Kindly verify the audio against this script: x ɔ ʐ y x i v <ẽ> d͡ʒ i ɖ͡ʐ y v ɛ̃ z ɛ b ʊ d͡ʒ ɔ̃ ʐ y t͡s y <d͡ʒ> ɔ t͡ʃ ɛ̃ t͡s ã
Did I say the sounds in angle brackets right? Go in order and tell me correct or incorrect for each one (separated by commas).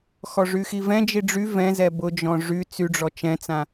incorrect, incorrect